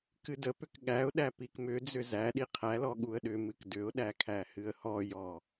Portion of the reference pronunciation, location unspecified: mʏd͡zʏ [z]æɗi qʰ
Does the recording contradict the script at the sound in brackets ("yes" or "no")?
no